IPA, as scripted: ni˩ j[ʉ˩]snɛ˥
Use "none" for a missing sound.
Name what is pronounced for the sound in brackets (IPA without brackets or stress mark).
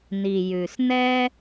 ʉ˩